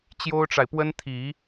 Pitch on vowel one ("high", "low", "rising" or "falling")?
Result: high